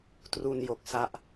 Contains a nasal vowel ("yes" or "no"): no